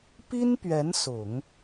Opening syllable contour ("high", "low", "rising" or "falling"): high